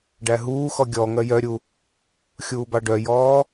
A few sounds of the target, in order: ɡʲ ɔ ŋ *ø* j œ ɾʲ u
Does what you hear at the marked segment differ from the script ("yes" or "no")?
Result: yes